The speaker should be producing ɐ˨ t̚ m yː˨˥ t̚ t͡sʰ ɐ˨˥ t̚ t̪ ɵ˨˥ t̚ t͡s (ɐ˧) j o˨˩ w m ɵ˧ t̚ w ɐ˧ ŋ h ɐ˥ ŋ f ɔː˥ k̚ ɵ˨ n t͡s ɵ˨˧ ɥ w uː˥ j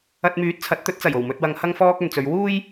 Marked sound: incorrect: ɐ˨˩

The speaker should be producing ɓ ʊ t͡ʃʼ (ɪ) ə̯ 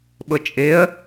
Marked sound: correct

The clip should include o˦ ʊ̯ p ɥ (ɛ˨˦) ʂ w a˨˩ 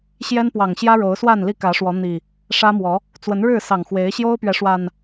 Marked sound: correct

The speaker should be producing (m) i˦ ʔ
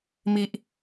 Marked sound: correct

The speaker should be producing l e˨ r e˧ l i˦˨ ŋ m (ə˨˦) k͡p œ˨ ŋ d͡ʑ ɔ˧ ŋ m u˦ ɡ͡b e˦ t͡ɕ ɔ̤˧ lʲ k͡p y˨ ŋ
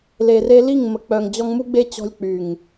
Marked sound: incorrect: ə˨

